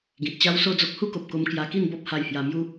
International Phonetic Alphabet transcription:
ɡĩ˨t̚t͡ɕa˦wso˥˧d͡zo˦k̚ hu˦ko˨p̚ko˧m kja˧ki˥˧nbɔ˦p̚ ha˧jhja˧mju˦

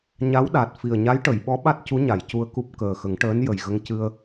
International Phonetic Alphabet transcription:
ɲa˧˥wɗa˨˩t̚ fi˨˩ə̯ɲa˧˥jʈə˨˩˨jɓɔ˧˥ ɓa˦˥t̚cu˧˥ɲa˨˩˨j cu˧ə̯ku˦˥p̚ kəː˨˩xə˨˩˦ŋ ʈəː˧˥njə˨˩jɣə˧ŋ cɨ˧ə̯

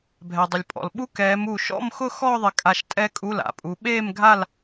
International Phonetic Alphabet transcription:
bʱɛ˩dˤʊ˩lʲpʼɔ̰˩lɓu˦˥ kɛː˨˦mu˧˩ ʃɔ̰˥˧mxʊ˥˧ xɔː˥˧ðˤɪ˧˩kʼa˧˩ʃ tʼɛ˦˥kʼu˧˥˧ la̰˩pʼu˨˦ ɓeː˥˧mɡʱa˥˧l

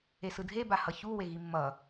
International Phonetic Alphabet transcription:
esɯdʱe bahʌçu weɣimːʌ

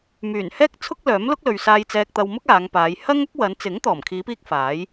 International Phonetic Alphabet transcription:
myː˨˩n hɛː˥k̚t͡sʰʊ˥k̚lœː˨˥mlʊ˥k̚ lɵ˨ɥsaː˧j t͡sɛː˧k̚t̪ɐ˧wmʊ˥k̚ aː˨˧ŋpaː˨˧j hɐ˥ŋɐ˥k̚wɐ˨˧n t͡sɪ˨˥ŋt̪ɔː˨˩mkʰiː˨˧piː˧k̚ faː˨˥j

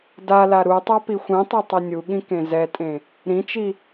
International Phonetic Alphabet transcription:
dala ɾutˤa pixʷĩtˤi tˤenʲuɠĩ kẽzɛtʼẽ | ɾĩt͡ʃi

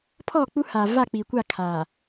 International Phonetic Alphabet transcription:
pʰɔ˦˨k͡pu˦haː˨ va˦˨k͡pi˨kʷa˦˨ kʰaː˨

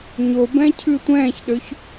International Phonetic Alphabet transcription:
ɲobɛ̃cʰʉ tʷɛ̃ːçɗøç

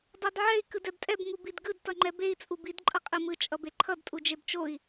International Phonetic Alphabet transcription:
dˤadʕɛi̯ kɯdɛbtʼɛb ŋubidɡɯd tʌŋ͡ǃɛbei̯ t͡sʼubid ǃʼʌqʼimɯ t͡ʃʼʌbeǃʰʌd tʼud͡ʒebt͡ʃoi̯

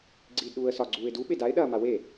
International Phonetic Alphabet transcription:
ɡ͡ǀiːdɗuːə̯sɒ ɡ͡ǀuːɪ̯du ɓedaɪ̯ ɗɐːmawe

